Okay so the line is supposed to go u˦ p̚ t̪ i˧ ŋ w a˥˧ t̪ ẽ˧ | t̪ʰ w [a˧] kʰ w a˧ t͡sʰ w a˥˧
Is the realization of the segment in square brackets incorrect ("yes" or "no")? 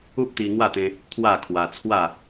yes